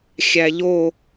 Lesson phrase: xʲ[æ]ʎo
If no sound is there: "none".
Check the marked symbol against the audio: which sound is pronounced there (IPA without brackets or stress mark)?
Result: æ